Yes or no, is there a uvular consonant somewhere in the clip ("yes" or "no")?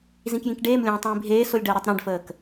no